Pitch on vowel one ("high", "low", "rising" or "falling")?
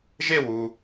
falling